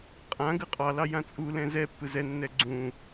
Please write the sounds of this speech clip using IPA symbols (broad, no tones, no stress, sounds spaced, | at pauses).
qʼ ã ɡ ɯ qʼ ɑ l ɑ j ã t͡sʼ u l ɛ̃ z ɛ pː ɯ z ɛ nː ɛ ɡ͡ǀ ũ